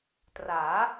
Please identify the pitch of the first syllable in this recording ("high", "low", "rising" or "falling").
rising